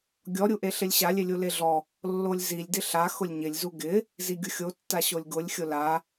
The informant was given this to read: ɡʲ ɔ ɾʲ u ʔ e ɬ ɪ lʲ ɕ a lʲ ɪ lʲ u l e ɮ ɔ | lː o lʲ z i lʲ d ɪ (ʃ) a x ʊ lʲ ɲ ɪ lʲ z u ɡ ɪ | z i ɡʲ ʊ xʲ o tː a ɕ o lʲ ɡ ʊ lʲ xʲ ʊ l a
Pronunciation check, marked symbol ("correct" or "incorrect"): incorrect